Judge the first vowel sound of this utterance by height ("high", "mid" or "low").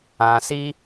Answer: low